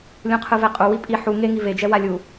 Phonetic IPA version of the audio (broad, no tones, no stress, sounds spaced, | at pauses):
lʲ ũ qʰ ɯ v ɛ qʼ u w i pʼ i ħ u ŋ e ŋ i v e d͡ʒ ɛ w a lʲ u